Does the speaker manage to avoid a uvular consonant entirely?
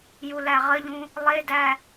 no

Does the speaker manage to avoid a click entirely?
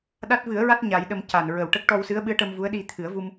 yes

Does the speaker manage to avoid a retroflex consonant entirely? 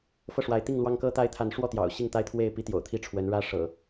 no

